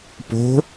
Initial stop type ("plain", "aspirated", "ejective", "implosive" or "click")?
plain